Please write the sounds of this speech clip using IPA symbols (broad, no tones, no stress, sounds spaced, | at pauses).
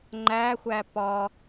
ŋ͡ǃ æ xʷ æ p ɒ